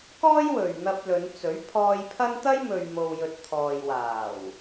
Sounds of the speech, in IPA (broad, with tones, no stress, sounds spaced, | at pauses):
k ɔː˥ j w ɵ˨ ɥ n̪ ɐ˧ p̚ l ɵ˨˧ n t͡s ɵ˨˥ ɥ pʰ ɔː˧ j pʰ ɐ˥ n t̪ ɐ˥ j m ɵ˨ ɥ m o˨ w j ɵ˨ t̚ t̪ʰ ɔː˨ j w aː˨˩ w